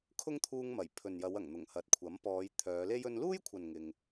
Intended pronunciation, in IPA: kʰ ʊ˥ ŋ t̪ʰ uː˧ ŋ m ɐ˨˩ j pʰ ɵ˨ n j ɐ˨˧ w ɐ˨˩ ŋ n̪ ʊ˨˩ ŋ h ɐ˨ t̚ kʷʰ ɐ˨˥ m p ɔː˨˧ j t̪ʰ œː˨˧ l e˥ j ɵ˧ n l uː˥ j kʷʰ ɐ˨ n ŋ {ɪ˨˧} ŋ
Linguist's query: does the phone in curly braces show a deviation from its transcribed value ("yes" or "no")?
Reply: yes